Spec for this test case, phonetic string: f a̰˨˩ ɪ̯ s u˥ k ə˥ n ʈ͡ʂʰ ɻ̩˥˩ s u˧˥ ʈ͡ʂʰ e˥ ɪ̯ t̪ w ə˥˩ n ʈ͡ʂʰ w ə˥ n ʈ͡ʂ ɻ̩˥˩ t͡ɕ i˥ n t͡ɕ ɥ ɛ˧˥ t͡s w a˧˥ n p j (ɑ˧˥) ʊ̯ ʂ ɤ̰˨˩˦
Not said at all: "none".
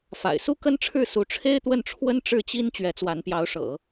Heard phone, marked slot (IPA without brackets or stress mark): ɑ˧˥